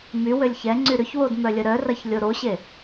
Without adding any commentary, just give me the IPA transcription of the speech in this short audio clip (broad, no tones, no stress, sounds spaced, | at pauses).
m y w ø lʲ ç ɛ ŋ͡ǀ y ɾ ʏ ç w o d m œ lʲ ə ɾ œ r ɐ ç lʲ o ɾ o ɕ e